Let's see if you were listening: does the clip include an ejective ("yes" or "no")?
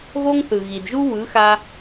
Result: no